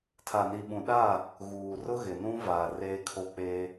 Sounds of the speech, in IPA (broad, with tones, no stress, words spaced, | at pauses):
tʰa˨ni˨ɓũ˨ɗaː˦˨ | ɣuː˨rʊ˦ ɣɪ˨nũ˦vaː˨ reː˦kʰo˦ k͡peː˦